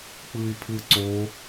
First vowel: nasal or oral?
oral